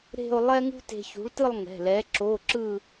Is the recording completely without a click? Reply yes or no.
no